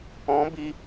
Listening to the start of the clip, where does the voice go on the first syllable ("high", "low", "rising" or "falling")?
rising